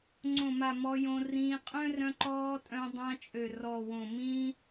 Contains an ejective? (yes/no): yes